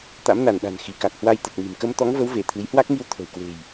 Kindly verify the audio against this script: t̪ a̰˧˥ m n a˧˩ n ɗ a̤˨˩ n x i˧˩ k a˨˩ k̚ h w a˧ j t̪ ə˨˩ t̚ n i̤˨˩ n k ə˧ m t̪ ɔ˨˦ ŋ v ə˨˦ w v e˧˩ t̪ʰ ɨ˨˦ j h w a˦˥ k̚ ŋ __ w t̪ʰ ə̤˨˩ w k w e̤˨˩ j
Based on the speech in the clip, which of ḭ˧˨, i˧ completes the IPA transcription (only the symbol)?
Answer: i˧